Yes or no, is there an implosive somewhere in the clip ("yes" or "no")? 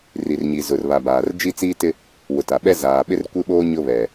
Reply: yes